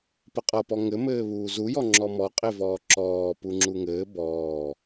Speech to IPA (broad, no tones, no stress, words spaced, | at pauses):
pəqʼʌpɔ ŋɘmɘːβuː zujɔ ŋ͡ǁɔmɔqʼe vɔːǁɔːpuŋ͡ǁu ŋɘː bɔː